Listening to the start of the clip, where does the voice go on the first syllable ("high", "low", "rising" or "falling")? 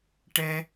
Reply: high